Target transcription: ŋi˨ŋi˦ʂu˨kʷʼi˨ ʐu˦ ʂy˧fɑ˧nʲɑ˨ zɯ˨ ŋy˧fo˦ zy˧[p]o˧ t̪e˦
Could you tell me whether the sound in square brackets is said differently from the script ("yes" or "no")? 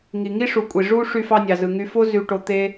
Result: yes